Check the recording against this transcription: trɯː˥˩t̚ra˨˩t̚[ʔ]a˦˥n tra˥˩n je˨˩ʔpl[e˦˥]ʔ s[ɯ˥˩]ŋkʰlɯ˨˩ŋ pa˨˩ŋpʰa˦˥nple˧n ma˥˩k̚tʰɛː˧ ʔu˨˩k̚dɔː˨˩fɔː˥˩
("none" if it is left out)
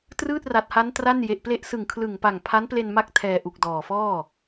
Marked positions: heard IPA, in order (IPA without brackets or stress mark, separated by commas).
h, e˦˥, ɯ˨˩